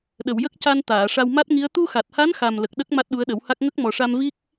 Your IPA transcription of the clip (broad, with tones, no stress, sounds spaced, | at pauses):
ɗ ə˨˩˨ w j ə˦˥ k̚ c a˧ n t̪ aː˨˩˨ ʂ a˧ w m a˦˥ t̚ ŋ i˧˥ ə̯ t̪ u˧ x a˨˩ t̚ h a˧˥ n x a˨˩ m l ə˨˩ k̚ ɗ ə˦˥ k̚ m a˦˥ t̚ ɗ u˧˥ ə̯ ɗ ə˨˩˦ w h a˦˥ k̚ ŋ ə˦˥ k̚ m ɔ˨˩ ʂ a˧ m v i˦˥ k̚